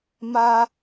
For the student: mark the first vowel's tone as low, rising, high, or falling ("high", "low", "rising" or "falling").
high